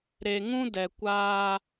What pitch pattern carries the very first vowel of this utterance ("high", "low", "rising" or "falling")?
low